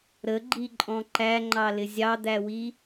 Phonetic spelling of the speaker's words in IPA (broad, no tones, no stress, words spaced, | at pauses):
ɾəɡ͡ǃiǃʼɔ̃ ǃæŋ͡ǃɑlɪ zʲɑd̪æwi